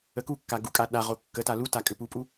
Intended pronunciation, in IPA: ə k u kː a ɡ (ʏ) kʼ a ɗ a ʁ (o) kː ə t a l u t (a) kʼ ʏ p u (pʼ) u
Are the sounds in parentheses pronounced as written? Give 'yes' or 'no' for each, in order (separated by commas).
no, yes, yes, yes